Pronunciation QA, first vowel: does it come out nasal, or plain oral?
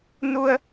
oral